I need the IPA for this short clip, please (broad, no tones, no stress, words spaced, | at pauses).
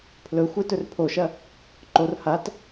pʰlɵxʷe tɵrpʰoʃɐ | ǃor hat